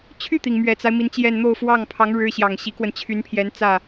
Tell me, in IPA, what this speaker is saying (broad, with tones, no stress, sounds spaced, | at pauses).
t͡ɕʰ y˥˩ t̪ i˩ ŋ m ɥ ɛ˨˩ t͡s a˦ ɪ̯ m i˧˥ n t͡ɕ j ɛ˥˧ n n̪ o˥˧ ʊ̯ f w ɑ˥˩ ŋ pʰ ɑ˧˥ ŋ ɻ ɻ̩˥ ɕ j ɑ˨˩ ŋ ɕ i˧˥ k w ə˧ n t͡ɕʰ y˧˥ n pʰ j ɛ˧˥ n t͡s ä˥˩